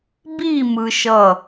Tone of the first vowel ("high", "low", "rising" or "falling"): falling